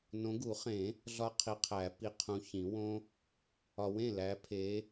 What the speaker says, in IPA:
n õ˨˦ ɡ u˨˩˦ χ ẽ˨˩˦ | ɮ ɒ˦˥ qʰ i˨˦ qʰ æ˨˩˦ p i˨ qʰ ũ˨ ç ĩ˨˩˦ w õ˦˥ | ɒ˨ w ẽ˥˩ l æ˨˦ pʰ e˨˦

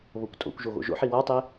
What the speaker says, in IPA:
β o kʷ tʼ o̰ kʷ ʒ o ɣ o̰ ʒ o̰ ħ i w ɒ tˤ e

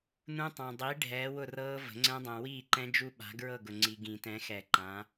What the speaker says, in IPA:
n ũ˦˥ tˤ ã˨ dˤ i˨˥ ɖʱ ɛː˨˥ w ʊ˥˨ r ɤː˦˥ v ə̤˨˩˦ ŋ͡ǀ ɛ̃˦˥ dˤ ɛ̃˨ w iː˥˨ ǃ ɛ̃˦˥ d͡ʒ u˦˥ ɓ a̤˨˥ ɡ ɹ ɤ˥˨ ɡ ʊ˨ ŋ͡ǀ i˨ ɡ ĩ˨˩˦ t ɛ̃˨˥ x ɛ˨˩˦ ǃ ã˨˥

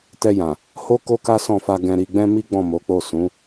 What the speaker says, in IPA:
t ɛ˧ j ã˨ | h o˦ k o˦ k a˦ s ɔ̃˦˨ f a˧ ɡ ɛ̃˧ ɾ i˧ ɡ͡b ɛ̃˦ m i˦ ɡ͡b ɔ̃˦˨ m o˨˦ k͡p o˦˨ s ũ˨˦

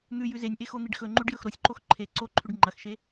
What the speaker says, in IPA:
n̪ ʉ j ʉ z e nʲ ʔ e x o n̪ i ɖ x ɵ ŋ͡ǃ ʉ ɖ j ɵ x ɾ o sʲ ǃ o x ǃʰ e ǀ o ǃʰ ʉ ɖ ŋ͡ǃ ɐ x ʃ e

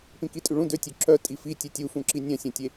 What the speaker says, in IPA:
p ĩ k i tʼ y ɭ ũ d ø tʲ ø ǁ œ tʼ i f i tʲ e tʲ u f ũ ǁ i nʲ œ̃ sʲ œ̃ tʲ e

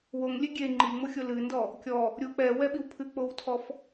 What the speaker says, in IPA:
w o ŋ lʲ e ɡʲ e ŋ͡ǃ i ŋ͡m o xʲ o l ɨ n d ɔ | kʲ ɔ | ɾʲ u k͡p ɛ w ɛ ɓ i w pʰ ɨ k͡p o w tʰ ɔ f

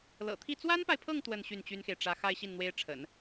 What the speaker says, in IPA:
l ɤ̰˨˩ t̪ʰ i˥˩ t͡s w a˥ n p a˨ ɪ̯ pʰ ɤ˥˧ ŋ t̪ w ə˥˧ n ɕ y˥˩ n t͡ɕ y˥ n x e˨ ɪ̯ ʈ͡ʂ ä˧˥ x a˥ ɪ̯ ɕ i˥˩ n n̪ w e˥ ɪ̯ ʈ͡ʂʰ ə̰˨˩˦ n

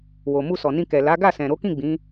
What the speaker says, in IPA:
w o˨ m u˧ s ɔ˨ n ĩ˧ k ɛ˨ l a˨˦ ɡ a˦˨ s ɛ̃˨ ɾ o˨˦ k ĩ˦˨ ɡ͡b ĩ˨˦

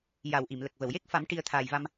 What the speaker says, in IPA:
j a˨˩˨ w ʔ i˨˩˨ m l ə˨˩ k̚ v ə˨˩˨ w j e˦˥ k̚ f a˨˩˦ m ʈ i˨˩˦ ə̯ t̪ʰ aː˨˩ j v a˧ m

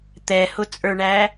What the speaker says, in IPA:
t̪ ɛ h ʊ t͡sʼ ə˞ ɳ æ

